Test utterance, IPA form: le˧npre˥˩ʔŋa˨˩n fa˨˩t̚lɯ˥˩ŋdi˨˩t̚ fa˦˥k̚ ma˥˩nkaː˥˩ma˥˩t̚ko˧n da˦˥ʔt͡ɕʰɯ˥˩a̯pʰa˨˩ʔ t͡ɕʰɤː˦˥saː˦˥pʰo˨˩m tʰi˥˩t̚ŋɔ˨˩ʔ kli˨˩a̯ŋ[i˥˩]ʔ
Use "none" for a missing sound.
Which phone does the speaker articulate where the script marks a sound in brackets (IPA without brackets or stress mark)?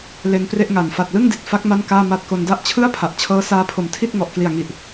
i˨˩